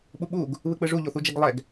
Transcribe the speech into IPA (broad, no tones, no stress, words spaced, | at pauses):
ɓuɓuɡ | βɯk͡pɯʐu ʎoθud͡ʒɛɡlˠɛɡ